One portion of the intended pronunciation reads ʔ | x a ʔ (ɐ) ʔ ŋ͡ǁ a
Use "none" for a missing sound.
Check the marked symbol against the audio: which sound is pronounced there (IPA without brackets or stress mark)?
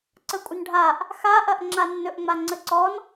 ɐ